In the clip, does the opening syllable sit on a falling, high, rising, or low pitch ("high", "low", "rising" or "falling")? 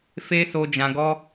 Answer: high